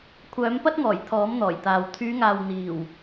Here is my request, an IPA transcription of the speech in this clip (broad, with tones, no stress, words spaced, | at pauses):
kʷʰœː˨˥mpɐ˥t̚ŋɔː˨˩j t̪ʰɔː˨˥mn̪ɔː˨˩jt̪aː˨w t̪ʰyː˨˧ŋaː˨w n̪iː˨˩w